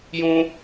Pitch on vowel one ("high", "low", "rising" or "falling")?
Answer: high